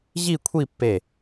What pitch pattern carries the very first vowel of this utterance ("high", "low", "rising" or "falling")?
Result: falling